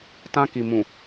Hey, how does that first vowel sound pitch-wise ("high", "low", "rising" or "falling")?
high